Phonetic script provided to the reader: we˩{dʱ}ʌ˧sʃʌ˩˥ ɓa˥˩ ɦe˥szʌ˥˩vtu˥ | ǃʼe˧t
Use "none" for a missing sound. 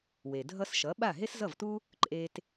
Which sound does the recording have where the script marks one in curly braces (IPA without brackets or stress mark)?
dʱ